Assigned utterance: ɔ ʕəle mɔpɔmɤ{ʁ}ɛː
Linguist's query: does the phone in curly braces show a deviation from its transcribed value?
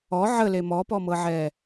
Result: yes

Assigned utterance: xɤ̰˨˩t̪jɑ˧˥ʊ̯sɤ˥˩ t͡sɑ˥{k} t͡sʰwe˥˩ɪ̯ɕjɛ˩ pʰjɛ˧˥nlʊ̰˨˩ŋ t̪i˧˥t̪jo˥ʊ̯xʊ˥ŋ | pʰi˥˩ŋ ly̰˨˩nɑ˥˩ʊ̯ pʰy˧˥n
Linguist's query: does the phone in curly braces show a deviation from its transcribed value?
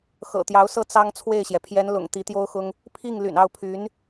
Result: yes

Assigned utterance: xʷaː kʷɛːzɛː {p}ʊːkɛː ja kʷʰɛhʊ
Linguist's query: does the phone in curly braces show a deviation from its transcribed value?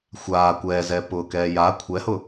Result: no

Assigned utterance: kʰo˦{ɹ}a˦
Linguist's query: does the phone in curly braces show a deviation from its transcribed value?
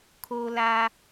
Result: yes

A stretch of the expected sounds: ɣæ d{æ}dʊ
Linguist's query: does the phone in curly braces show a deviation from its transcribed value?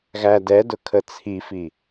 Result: yes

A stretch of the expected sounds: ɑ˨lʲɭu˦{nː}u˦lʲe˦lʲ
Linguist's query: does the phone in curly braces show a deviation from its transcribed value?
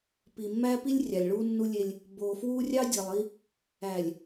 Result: no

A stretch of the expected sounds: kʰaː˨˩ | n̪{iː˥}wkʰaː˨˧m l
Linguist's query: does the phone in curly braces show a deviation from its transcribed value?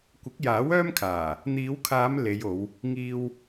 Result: yes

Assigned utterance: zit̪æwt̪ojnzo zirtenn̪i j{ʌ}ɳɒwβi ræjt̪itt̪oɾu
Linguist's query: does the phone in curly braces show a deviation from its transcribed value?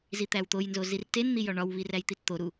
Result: yes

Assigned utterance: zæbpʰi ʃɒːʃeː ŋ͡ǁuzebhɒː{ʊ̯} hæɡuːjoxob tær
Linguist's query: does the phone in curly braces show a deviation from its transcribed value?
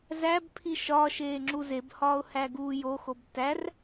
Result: no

